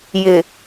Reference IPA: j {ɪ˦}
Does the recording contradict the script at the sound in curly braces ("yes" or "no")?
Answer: yes